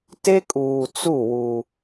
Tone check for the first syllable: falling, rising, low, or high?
high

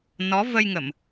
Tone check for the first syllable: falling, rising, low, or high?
rising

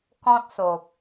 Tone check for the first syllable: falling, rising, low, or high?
high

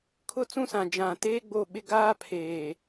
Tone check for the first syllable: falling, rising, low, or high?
high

